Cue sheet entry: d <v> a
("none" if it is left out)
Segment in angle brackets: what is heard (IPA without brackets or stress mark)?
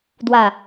w